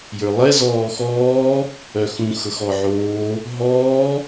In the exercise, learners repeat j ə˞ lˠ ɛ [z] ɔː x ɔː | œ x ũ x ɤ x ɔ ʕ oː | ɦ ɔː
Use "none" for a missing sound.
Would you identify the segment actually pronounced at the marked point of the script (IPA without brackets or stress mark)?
z